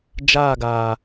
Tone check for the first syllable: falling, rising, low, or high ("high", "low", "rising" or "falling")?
falling